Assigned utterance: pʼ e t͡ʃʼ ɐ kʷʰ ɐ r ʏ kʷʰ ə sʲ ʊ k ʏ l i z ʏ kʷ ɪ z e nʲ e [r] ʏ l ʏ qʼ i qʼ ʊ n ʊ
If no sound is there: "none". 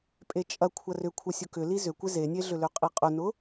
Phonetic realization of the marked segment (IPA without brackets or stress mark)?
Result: ɮ